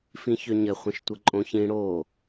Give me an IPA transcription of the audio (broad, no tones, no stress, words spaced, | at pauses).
fĩçøɲɘ χʷə̃ʃtʷəǃʼõçĩ ɽo